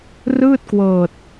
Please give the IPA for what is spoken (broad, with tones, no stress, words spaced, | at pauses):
rɯː˥˩t̚kwɤː˨˩t̚